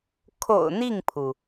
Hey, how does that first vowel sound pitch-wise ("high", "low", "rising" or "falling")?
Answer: low